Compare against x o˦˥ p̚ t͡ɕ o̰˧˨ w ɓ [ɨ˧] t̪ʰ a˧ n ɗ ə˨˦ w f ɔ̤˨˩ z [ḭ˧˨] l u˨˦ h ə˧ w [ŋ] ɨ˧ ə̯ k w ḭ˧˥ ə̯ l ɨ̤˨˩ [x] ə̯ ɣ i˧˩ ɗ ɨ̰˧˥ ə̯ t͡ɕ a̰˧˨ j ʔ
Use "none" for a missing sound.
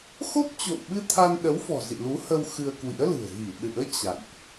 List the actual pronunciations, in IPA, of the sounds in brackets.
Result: ɨ˧, ḭ˧˨, x, none

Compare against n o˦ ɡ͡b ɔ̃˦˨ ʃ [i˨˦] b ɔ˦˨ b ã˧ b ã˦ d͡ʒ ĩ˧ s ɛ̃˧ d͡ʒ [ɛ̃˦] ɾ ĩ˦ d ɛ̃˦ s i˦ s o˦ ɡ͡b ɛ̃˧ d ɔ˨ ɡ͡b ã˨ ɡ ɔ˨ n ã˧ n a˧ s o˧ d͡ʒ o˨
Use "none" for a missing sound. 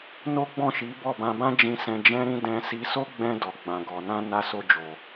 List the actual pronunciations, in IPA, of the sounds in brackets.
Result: i˨˦, ɛ̃˦

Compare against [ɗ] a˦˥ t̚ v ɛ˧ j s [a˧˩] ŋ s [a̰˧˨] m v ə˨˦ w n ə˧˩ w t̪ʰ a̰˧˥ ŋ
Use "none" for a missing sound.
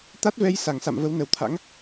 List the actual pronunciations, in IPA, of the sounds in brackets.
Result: t̪, a˧˩, a̰˧˨

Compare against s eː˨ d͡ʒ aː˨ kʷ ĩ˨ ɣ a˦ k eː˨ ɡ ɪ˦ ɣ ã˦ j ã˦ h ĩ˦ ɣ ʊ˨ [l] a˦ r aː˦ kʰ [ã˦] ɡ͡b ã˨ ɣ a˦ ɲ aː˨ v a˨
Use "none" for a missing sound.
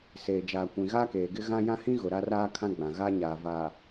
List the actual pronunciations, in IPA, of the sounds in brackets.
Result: ɾ, ã˦

